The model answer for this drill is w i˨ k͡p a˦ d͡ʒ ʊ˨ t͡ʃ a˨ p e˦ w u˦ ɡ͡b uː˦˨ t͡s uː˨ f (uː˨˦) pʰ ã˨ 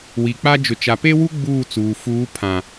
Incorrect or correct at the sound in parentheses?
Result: correct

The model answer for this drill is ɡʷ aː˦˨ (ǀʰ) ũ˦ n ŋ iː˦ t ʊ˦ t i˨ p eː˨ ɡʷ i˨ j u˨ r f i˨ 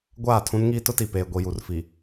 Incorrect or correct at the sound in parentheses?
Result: incorrect: tʰ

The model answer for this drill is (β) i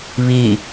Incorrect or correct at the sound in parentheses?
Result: correct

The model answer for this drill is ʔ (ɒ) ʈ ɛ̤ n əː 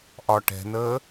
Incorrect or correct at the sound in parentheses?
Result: correct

